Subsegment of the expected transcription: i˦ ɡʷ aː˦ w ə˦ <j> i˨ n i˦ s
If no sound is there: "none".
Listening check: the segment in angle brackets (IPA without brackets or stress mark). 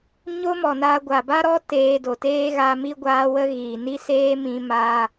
ɣ